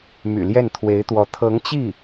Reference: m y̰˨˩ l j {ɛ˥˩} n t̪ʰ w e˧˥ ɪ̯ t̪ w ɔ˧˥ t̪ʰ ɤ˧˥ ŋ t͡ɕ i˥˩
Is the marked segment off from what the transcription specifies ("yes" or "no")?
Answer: no